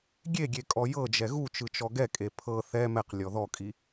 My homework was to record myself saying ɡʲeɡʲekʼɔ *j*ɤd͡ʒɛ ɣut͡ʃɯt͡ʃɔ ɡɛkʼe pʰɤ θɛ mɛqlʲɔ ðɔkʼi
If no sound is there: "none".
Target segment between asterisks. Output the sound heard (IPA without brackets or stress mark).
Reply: j